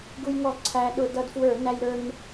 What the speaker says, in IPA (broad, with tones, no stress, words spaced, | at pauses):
ɡu˧jŋɔ˧˩˧ ǀʰæ˧ ɗʊ˧˩˧ dʌ˧dfwə˞˧˩˧næ˧jɾə˞˧n